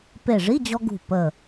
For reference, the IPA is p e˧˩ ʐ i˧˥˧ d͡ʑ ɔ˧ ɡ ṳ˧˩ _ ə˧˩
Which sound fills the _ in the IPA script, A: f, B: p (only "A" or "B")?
B